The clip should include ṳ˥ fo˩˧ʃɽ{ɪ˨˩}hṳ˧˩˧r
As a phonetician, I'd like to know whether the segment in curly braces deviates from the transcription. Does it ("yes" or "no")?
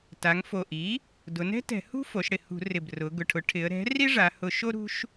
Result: no